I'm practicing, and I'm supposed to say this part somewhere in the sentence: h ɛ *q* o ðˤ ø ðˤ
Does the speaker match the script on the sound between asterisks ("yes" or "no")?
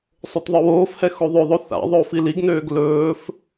no